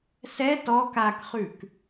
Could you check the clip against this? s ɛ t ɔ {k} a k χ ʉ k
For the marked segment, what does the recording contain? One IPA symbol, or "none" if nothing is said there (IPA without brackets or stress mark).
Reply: k